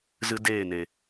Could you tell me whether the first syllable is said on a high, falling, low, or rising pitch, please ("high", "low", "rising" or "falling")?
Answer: high